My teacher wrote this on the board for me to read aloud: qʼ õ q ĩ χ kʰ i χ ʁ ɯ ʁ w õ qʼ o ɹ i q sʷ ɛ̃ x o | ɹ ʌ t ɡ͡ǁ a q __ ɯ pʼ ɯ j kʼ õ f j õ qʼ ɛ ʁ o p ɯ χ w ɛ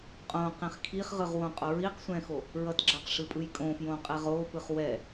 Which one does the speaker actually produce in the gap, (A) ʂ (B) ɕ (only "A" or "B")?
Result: A